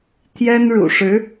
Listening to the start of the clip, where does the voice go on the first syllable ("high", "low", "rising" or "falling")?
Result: high